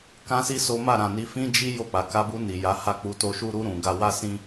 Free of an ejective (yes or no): yes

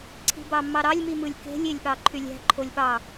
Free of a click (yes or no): no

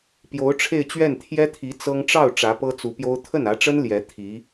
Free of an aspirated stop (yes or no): no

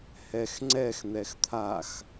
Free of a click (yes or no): no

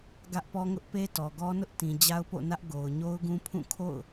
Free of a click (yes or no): yes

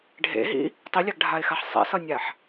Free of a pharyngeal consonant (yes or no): no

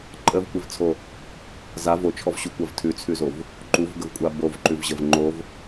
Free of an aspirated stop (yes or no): no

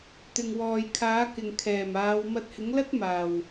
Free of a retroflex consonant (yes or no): yes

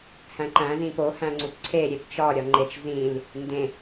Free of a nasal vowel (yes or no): no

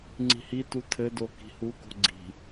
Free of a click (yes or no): no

